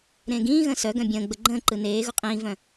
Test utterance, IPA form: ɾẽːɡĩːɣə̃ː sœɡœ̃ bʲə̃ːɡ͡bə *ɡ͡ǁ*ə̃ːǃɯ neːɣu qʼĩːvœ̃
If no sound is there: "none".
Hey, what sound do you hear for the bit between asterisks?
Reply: ɡ͡ǃ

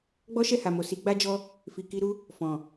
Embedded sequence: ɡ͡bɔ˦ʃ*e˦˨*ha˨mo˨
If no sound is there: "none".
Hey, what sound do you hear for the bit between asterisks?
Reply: ɛ˦˨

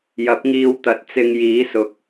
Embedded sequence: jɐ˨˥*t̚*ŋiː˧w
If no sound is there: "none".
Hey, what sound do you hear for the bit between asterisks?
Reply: p̚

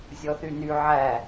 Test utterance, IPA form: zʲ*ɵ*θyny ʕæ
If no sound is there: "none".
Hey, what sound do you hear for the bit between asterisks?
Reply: ɔ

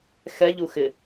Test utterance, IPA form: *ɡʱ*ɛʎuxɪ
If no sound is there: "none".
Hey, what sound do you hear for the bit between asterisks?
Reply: x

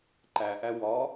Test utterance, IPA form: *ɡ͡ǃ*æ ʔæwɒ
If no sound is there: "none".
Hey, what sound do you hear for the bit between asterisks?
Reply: ǃ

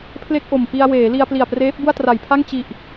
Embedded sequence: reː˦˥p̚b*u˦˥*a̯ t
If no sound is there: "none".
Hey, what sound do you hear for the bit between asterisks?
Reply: u˥˩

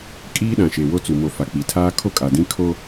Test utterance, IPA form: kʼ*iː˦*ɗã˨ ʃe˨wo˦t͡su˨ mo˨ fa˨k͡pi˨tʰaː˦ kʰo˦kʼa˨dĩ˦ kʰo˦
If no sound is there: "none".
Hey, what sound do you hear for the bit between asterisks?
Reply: iː˦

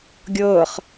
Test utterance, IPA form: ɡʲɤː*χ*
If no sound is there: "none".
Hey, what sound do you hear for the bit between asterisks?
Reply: χ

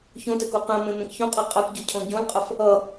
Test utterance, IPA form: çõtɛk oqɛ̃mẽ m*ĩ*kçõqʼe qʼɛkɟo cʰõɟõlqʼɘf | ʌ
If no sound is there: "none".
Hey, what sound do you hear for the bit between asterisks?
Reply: ẽ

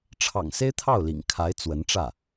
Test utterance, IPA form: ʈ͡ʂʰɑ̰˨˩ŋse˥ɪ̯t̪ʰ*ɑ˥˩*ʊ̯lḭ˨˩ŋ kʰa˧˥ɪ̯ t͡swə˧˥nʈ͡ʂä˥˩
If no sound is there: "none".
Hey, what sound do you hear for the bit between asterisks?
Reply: ɑ˥˩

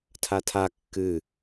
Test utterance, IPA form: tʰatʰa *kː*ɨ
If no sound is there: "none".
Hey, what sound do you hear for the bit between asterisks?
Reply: kː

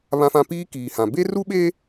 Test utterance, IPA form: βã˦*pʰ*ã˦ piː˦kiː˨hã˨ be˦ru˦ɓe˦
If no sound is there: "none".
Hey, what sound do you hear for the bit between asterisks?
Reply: f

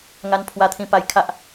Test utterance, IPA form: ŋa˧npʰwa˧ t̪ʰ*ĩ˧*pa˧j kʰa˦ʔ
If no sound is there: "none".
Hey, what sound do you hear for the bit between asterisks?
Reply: ĩ˧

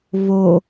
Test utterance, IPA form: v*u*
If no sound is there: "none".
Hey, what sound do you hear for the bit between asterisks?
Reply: o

